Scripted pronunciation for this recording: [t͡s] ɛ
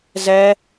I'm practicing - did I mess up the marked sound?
yes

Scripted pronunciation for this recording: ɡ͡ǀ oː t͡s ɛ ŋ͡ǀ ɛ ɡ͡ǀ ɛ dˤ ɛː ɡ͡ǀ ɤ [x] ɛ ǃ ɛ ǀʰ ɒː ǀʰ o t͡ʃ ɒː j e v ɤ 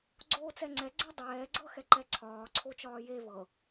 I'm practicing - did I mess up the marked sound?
no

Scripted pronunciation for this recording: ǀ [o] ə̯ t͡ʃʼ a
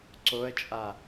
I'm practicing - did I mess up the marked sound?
no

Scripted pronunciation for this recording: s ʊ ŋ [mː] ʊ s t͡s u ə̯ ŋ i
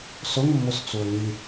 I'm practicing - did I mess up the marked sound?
no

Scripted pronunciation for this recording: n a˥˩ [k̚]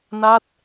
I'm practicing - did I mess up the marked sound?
yes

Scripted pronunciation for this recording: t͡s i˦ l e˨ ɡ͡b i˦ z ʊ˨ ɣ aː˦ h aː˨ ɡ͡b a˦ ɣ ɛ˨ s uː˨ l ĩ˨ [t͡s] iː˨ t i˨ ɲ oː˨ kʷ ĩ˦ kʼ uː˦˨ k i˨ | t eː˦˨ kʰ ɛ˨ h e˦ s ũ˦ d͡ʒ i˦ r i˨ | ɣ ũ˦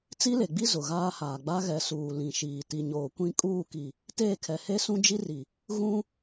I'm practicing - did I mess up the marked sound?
yes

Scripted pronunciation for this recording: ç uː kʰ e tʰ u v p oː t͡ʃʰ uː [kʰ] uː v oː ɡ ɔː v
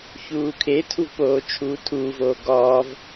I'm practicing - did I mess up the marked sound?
yes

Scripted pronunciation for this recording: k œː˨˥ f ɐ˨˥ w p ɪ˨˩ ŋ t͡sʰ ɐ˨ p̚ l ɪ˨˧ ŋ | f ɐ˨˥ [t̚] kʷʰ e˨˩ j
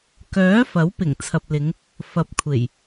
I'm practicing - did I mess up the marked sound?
yes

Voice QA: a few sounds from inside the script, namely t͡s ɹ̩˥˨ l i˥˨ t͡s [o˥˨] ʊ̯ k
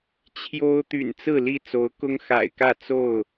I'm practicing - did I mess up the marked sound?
yes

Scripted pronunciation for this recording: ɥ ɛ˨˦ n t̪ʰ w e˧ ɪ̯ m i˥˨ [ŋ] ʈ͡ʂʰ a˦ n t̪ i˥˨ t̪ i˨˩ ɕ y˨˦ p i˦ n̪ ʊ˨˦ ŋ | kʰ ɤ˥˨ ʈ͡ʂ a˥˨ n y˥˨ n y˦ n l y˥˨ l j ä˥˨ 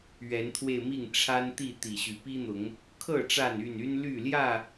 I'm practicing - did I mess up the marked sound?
no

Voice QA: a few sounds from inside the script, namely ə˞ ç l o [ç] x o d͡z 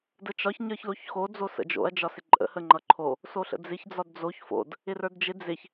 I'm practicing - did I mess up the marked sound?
no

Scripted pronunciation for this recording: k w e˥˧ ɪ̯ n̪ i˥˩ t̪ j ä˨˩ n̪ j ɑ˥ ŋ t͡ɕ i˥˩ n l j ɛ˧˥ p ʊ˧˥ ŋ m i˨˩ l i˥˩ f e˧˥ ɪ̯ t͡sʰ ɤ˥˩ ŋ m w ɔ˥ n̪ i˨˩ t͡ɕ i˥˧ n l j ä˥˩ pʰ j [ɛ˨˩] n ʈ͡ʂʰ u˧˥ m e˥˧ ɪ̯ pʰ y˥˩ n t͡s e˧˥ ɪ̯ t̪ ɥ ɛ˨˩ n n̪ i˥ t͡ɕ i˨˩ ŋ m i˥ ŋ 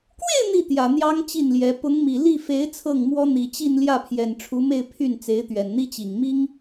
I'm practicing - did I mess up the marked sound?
no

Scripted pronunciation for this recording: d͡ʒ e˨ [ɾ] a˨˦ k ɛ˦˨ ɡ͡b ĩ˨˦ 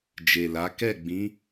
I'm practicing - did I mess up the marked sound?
yes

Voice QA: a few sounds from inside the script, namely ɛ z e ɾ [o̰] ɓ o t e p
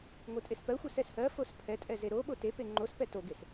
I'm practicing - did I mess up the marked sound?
yes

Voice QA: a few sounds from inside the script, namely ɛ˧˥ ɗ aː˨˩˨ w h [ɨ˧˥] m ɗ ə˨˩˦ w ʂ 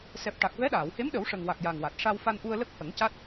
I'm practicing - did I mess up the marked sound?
yes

